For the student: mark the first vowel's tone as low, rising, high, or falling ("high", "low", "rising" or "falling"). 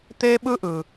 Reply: high